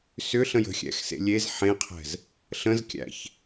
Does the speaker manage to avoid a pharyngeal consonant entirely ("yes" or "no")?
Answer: no